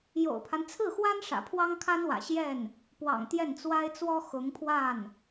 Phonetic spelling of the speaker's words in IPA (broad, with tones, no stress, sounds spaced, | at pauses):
j o̰˨˩ ʊ̯ pʰ a˦ n t͡sʰ ɹ̩˥˩ x w a˥ n ʂ ä̰˨˩ pʰ w ɑ˥ ŋ kʰ a˥ n w ä̰˨˩ ɕ j ɛ˥˩ n | p w ɑ̰˨˩ ŋ t̪ j ɛ˥˩ n t͡s w a˥ ɪ̯ t͡s w ɔ˥ x ʊ˧˥ ŋ pʰ w a˥˩ n